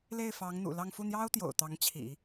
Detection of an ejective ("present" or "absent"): absent